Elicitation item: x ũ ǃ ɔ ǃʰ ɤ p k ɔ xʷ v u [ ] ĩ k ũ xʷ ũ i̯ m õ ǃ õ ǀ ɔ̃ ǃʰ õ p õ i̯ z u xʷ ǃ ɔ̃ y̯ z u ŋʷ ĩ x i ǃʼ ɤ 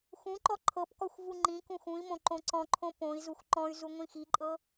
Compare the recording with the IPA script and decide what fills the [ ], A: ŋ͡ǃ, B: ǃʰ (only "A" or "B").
A